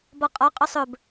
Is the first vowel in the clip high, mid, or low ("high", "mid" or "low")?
mid